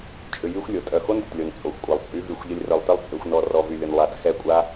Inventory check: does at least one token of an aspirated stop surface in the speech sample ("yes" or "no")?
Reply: no